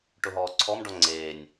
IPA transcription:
ʈ ʊ ɦ ɔː ǀʰ ɔ m ɖ ɔ ŋ͡ǀ eː nʲ

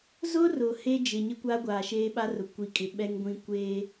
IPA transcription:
z ʊ˦ r ʊ˨ h e˦ d͡ʒ ɪ˨ ɲ ɪ˦ kʷ a˦ ɡʷ aː˨ ʃ eː˦ ɓ a˦ r ʊ˨ kʷ i˨ kʼ ɪ˨ ɓ ɛ˦ ŋ ɡʷ ĩ˦ kʷ e˦

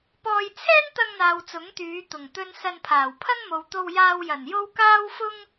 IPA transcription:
p ɔː˧ j t͡sʰ ɛː˥ n t̪ ɐ˧ ŋ n̪ aː˨ w t͡s ʊ˨˥ ŋ t̪ yː˨˧ t̪ ʊ˨˩ ŋ t̪ ɵ˧ n s ɐ˧ n pʰ aː˨˩ w pʰ ɐ˥ ŋ m o˨ w t̪ o˧ w j aː˧ w j ɐ˨˩ n j o˥ w k aː˥ w f ʊ˥ ŋ

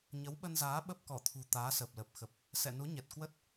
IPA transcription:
ɲ ə˨˦ w ɓ ə˧ n z aː˨˦ ɓ ə˦˥ p̚ k ɔ˧˩ t̪ʰ ṳ˨˩ t̪ aː˨˦ s əː˨˩ p̚ l ə˨˩ p̚ x ə˨˩ p̚ | s ɛ̰˧˨ n u˨˦ ɲ ɛ˨˩ t̚ k w ə˦˥ t̚

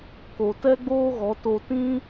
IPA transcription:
k o˨ t ɛ˦ ɡ͡b oː˦ ɣ ɔ˨˦ t o˧ t ĩ˦

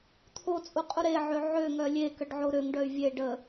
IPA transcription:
t̪ʰ o t͡sʼ u qʼ u ɾ e ʕ ø ʕ ø ŋ œ lʲ e k ə ɖ ʕ o ɾ ø ŋ ɖ œ y̯ vʲ e ɖ ə

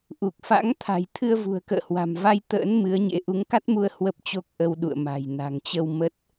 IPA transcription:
ʔ u˨˩ k̚ f a̰˧˥ ŋ t̪ʰ a̤˨˩ j t̪ʰ ɨ˧ ə̯ v ṳ˨˩ ə̯ k ə̰ː˧˨ h w a̤˨˩ m v a˧ j t̪ ə̰ː˧˥ n m ɨ˨˦ ə̯ ɲ ḛ˧˥ ʔ u˨˦ ŋ k a˦˥ t̚ m u˧ ə̯ h w ə˦˥ p̚ t͡ɕ o˦˥ k̚ ʔ ə˧ w ɗ ṵ˧˨ ə̯ m a̤˨˩ j n a̤˨˩ ŋ t͡ɕ ə˧ w m ə˦˥ t̚

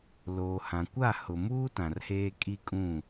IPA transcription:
l oː˨ h ã˨ kʷ a˦˨ h ʊ˨ m uː˦ t ã˨ r h eː˦ kʼ i˦ kʼ ũ˦˨

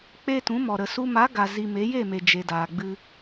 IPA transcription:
k͡p e˦ t ũ˨˦ m ɔ˨ ɾ ə˨ s u˧ m a˨˦ ɡ a˨ z i˧ m e˨˦ j e˦˨ m e˨ d͡ʒ e˨ d aː˨ ɡ͡b ɨ˧

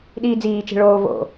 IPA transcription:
ɗ iː d͡z iː t͡ʃ e̤ ɭ oː v o̰

